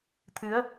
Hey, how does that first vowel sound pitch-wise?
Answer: rising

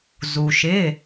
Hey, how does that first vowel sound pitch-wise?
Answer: low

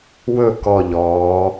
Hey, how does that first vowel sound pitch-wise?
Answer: falling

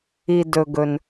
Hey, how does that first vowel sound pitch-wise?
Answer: low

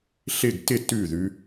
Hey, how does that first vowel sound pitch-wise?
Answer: falling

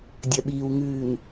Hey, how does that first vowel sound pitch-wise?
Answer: low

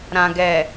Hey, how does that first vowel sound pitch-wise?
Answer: low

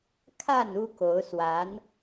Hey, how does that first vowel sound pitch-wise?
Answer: falling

